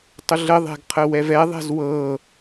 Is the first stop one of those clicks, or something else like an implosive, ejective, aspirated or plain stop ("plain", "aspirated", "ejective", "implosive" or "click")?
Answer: plain